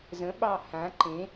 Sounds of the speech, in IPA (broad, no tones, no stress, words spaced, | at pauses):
zə̃ɓɑ hã ǃẽ